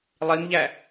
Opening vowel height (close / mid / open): close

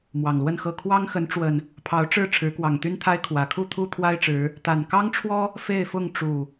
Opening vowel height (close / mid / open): open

